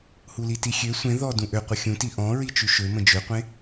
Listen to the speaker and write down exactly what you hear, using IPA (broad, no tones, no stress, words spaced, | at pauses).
hulitixʲø sʷẽ ðɔdũ ʔøqʷə xʲũti ʔɔ̃ɹi t͡ʃyʃømə̃ d͡ʒøqʷẽ